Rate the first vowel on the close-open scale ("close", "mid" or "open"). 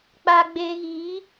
open